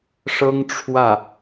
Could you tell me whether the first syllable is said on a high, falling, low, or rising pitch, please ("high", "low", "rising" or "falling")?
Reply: high